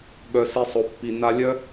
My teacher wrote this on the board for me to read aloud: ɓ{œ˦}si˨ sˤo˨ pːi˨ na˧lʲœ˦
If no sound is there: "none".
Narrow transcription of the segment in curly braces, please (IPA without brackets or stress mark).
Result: œ˨